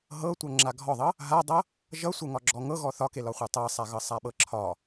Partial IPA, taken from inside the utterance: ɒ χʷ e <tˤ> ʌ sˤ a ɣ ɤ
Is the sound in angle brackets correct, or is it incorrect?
correct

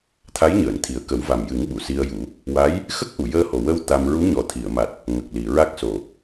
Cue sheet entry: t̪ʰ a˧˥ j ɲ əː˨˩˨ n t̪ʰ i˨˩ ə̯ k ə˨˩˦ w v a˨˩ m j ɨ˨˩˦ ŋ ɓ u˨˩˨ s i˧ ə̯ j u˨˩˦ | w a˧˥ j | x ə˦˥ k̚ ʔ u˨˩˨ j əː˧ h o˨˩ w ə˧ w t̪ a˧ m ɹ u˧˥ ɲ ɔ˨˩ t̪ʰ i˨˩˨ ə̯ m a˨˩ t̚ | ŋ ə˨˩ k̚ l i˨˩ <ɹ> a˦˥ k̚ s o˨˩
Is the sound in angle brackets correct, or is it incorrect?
correct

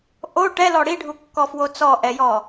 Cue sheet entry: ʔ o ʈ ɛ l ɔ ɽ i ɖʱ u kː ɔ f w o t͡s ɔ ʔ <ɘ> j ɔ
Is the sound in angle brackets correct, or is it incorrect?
incorrect: ɛ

